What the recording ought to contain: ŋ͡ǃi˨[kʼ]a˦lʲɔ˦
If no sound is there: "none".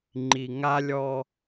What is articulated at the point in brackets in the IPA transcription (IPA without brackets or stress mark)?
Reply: ŋ